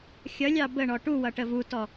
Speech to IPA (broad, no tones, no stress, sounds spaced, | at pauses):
xʲ ʌ lʲ ɑ b ə ɳ ɔ ʈ u w ʌ ʈ ə v u t ɔ